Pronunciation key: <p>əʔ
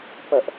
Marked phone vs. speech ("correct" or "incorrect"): correct